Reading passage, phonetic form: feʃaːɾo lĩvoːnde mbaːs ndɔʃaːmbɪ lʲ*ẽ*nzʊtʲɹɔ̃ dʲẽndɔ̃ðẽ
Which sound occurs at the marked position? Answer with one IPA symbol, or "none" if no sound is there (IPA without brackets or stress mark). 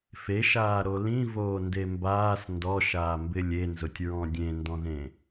e